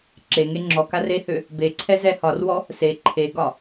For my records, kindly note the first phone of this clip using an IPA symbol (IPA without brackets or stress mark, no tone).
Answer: ǁ